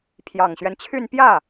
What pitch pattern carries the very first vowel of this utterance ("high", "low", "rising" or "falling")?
low